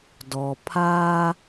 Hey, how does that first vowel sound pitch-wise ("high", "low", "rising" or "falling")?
low